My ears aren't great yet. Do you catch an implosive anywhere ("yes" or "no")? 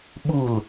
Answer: yes